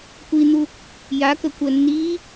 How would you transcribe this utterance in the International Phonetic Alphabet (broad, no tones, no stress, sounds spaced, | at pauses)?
kʷ i n̪ u | j a k ə kʷ ɜ nː iː